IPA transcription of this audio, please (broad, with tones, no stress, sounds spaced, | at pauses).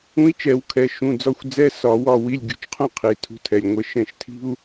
ũ˧˥ i̯ t͡ʃ ɛ˧˩˧ w kʰ ɛ˩˧˩ ʃ ũ˩˧˩ d͡z ɒ˦˨ xʷ d͡z ɛ˧˥˧ s ɒ˧˩˧ w ɒ˦˨ w i˧˥˧ lʲ ɡʲ ṳ˧˥ t͡ʃ qʰ ũ˥ qʰ i˩˧˩ tʰ ṳ˧˥ tʰ ɛ˩˧˩ lʲ ŋʷ ɛ˦˨ ʃ ɛ̃˦˨ ʃ tʰ i̤˥ u̯